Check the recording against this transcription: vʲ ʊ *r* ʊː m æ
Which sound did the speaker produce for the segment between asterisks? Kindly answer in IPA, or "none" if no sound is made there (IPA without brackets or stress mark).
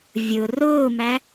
r